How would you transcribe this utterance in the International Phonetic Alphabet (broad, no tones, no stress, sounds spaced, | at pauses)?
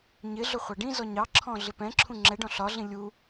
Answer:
ɲ ɪ ɮ ʊ χʷ ɑ ɖ ĩ z ɔ ɲ ɑ ǁʰ ɔ̃ ɮ ɪ p ɛ̃ ǁʰ ũ ŋ͡ǁ ɛ ɖ ɔ̃ ɬ ɒ ɮ ĩ lʲ u